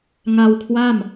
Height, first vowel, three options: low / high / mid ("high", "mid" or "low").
low